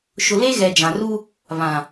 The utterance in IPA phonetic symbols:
ʃ ʊ˨ l e˦ ɣ ɛ˨ d͡ʒ ã˨ r u˦ | β ã˨

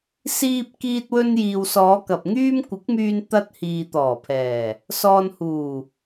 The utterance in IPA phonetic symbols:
s iː˧ p̚ k iː˧ t̚ w ɵ˧ n j iː˨ w s ɔː˨˧ k ɐ˨ p̚ ŋ yː˥ m kʷ ɪ˨˥ k̚ m yː˧ n t̪ ɐ˧ t̚ h iː˨ t̪ ɔː˨˩ pʰ ɛː˨˩ | s ɔː˨ n h uː˨˩

